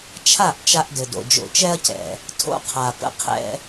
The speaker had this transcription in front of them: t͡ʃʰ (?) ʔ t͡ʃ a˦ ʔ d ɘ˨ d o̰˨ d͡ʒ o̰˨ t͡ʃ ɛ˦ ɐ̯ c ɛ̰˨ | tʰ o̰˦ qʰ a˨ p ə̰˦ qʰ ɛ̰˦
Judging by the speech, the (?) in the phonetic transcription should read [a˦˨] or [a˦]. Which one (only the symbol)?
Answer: a˦˨